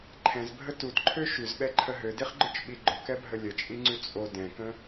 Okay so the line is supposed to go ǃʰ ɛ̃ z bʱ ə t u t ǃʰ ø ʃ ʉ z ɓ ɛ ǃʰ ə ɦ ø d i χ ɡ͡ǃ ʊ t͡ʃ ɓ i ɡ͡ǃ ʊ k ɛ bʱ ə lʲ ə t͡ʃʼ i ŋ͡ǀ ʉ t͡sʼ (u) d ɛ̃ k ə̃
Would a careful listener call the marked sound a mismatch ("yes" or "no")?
yes